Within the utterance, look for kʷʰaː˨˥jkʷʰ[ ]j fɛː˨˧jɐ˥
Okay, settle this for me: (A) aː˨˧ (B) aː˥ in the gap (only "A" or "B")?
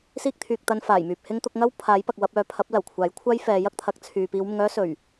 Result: B